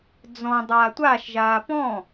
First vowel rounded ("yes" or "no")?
yes